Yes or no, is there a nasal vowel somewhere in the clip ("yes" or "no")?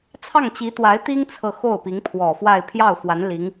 no